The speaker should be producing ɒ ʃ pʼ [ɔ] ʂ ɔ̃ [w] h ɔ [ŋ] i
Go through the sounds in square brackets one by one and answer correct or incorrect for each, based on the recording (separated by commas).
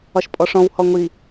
correct, correct, incorrect